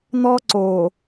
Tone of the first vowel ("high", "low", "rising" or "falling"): high